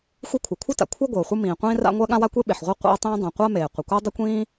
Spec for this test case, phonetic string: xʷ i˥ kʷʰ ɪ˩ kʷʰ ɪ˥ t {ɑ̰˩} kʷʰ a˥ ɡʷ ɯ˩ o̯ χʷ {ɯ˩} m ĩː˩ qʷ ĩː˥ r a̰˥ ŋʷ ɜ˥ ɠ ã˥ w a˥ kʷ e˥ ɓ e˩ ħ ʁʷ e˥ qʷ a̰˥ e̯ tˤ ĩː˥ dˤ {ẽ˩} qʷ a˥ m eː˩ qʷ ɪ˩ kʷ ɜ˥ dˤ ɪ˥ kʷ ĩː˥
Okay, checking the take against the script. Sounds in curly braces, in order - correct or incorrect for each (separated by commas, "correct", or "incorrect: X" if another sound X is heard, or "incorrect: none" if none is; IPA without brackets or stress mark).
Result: incorrect: a̰˩, incorrect: ɯ˥, correct